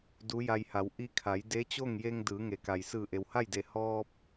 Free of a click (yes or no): yes